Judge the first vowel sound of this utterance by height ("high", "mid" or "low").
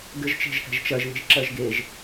mid